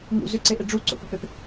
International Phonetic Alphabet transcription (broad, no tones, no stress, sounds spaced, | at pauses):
ŋ ṵ z ʏ ǀ e ʔ e ɖ͡ʐ u ǀ o̰ p ʏ p e p